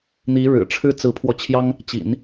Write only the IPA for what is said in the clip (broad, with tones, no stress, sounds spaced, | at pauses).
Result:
n̪ i˧˥ ɻ ɻ̩˨˩ ʈ͡ʂʰ ɻ̩˥ t͡s ɹ̩˧˥ pʰ w ɔ˧ t͡ɕʰ j ɑ˥ ŋ | t͡ɕ ḭ˨˩˦ n